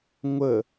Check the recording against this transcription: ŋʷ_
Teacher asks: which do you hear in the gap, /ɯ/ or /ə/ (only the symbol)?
ə